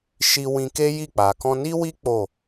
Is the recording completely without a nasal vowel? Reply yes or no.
no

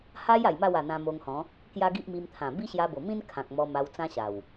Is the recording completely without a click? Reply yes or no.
yes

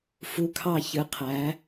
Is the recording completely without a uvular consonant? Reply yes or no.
no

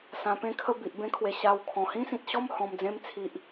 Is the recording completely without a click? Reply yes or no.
yes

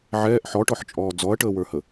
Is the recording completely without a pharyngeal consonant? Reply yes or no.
no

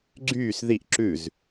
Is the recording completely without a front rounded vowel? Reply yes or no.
no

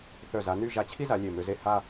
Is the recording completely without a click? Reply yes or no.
yes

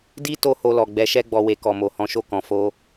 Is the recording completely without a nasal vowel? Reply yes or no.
no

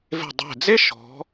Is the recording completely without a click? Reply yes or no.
yes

